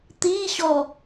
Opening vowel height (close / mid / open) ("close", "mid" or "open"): close